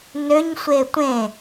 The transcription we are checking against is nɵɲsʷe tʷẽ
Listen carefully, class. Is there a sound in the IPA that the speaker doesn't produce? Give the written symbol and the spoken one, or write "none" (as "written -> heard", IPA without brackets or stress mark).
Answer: ɵ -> ø